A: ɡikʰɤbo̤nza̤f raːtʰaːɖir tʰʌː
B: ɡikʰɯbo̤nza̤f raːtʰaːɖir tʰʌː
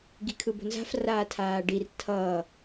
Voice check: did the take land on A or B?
B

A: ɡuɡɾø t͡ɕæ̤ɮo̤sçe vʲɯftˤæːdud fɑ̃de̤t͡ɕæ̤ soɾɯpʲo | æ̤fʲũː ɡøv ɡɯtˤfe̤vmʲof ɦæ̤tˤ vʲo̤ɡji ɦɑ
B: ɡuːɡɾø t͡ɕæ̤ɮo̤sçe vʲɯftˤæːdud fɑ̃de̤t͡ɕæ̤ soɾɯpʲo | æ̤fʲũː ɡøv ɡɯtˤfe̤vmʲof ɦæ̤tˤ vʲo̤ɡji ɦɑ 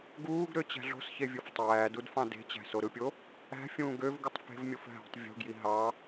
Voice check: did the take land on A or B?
B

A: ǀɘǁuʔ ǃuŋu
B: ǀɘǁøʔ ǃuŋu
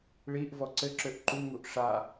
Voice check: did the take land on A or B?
B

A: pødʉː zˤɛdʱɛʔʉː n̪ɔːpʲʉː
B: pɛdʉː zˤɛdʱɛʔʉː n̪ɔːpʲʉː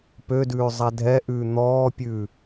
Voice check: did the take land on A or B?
A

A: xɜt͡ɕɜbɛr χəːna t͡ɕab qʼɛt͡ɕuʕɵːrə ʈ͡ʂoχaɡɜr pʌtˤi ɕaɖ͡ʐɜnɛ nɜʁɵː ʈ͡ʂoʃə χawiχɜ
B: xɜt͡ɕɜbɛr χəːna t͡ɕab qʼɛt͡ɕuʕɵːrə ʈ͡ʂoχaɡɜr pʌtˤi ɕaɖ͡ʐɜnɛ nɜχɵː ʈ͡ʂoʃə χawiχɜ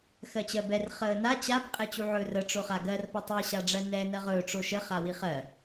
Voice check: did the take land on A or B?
A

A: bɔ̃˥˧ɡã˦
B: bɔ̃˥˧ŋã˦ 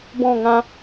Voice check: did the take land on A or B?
B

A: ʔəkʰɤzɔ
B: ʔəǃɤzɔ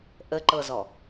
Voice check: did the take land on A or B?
B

